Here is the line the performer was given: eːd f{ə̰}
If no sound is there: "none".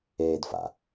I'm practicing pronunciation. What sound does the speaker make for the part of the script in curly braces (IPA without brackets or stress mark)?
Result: a̰